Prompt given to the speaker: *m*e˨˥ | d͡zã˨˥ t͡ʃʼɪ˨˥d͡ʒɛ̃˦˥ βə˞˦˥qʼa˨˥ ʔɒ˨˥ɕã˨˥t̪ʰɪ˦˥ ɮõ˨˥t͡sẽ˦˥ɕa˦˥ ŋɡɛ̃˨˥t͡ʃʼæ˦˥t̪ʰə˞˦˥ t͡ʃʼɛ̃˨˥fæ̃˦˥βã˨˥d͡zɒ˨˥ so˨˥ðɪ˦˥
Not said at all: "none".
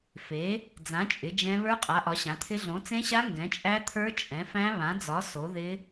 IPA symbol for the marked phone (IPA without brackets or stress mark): f